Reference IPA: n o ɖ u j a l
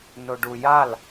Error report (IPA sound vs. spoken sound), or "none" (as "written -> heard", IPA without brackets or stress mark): none